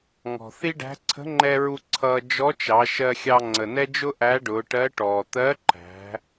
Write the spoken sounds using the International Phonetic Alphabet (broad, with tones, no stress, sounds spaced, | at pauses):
ŋ ɔ̤˩ θ i˥ ɖ æ̤˧˥ ǀʰ ə̤˧˥ ŋ͡ǃ ɛ˧ ɹ u˧ ǀʰ ʌː˧ d͡ʒ ɔ˧˥ t͡ʃ ɑ˩˧ ʃ ɜ˧ xʲ ɑ˧ ŋ͡ǀ ə˩ n ɛ˥ d͡ʒ ʊ˥ ʔ æ˧˥ ɖ ʊː˩˧ ʈ ɜ˧˥ ʈ ɔː˩ t̪ ɜ˧˥ ǃ æ̤˩˧